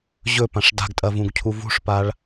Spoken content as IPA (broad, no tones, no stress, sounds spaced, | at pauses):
ʑ ɵ p ã ʂ d a̤ ɡ tʼ ɐ v ũ ɡ cʰ u v ṳ ʂ p a ɭ